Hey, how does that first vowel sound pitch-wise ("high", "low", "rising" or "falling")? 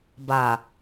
low